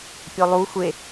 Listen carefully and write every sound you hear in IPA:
pʲolˠu xʷe

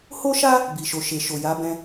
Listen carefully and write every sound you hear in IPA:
ho˦ʃa˦ | bi˨ʃo˨ ʃe˨ʃo˨ ja˨˦bɛ̃˧

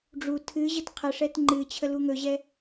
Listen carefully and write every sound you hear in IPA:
ɖ͡ʐu tʰɨ ʑətqʰəʂɛt ŋ͡ǃɨ t͡ɕʰəluŋɵʑɛ

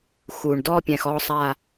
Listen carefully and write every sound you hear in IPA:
xu˩ɳdɔ˥˧ pʲɛ̃˩xɔ˧˩sˤa˧˩

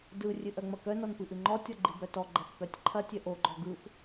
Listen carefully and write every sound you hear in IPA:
dɯ rʲɨʔœŋ͡mɐkœ nɔnpɨʔɨŋ͡ǃɔ tʲɔɡ͡ǃibœtɔ ɡ͡ǃɐfpœtʲǃʰɐ tʲœʔo ɡ͡ǃɔɡɯf

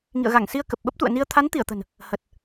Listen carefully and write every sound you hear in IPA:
ŋḭ˧˨ə̯ɣa˧˩ŋsi˧ə̯ kə˨˩p̚ɓə˦˥p̚t̪ṵ˧˨ə̯ni˧ə̯ t̪ʰa˨˦nt̪i˧˩ə̯t̪ə̤˨˩n | hə˨˩t̚

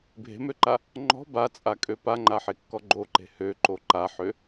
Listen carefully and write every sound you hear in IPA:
bʱe̤møǃa | ŋ͡ǃɔ̤ bat͡sʼakʼø paŋ͡ǃaħekːɔ ɡ͡ǃoǃe̤ høǃo ǃaħø

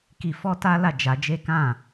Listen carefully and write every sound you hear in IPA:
ki˧ fɔ˦ta˦la˦˨ d͡ʒa˧d͡ʒe˦kã˦˨

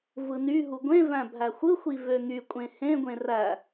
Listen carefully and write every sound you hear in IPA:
vɯnyɦu ɡʷẽvæ̃ bʱæxʷɯxʷi vøŋykʷʼẽ hẽɡʷẽ ræ

